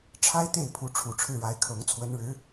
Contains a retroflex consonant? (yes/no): yes